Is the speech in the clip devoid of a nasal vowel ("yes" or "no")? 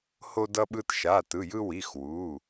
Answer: yes